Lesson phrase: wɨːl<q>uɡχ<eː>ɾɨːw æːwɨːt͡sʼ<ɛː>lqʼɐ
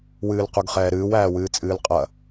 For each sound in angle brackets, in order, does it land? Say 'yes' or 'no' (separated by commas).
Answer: yes, no, no